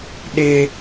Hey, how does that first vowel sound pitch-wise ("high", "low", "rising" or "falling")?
high